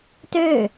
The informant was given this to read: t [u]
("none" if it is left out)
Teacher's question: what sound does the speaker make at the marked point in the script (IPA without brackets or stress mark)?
ø